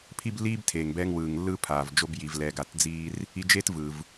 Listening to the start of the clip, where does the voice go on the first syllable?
high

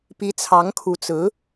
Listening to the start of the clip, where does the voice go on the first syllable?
rising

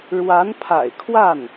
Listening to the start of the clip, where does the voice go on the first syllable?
rising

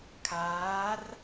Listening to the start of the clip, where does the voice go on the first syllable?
rising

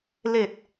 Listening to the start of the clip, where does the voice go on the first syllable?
falling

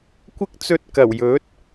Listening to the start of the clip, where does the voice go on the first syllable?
high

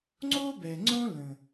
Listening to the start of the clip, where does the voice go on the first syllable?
high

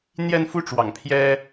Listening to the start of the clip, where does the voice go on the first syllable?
high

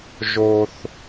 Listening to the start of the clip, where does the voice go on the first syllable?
high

